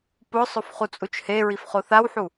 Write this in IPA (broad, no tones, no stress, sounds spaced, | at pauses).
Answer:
p ʊ sˤ ʊ f χ u t͡sʼ u t͡ʃ h e ɹ i f χ o θ a w ħ u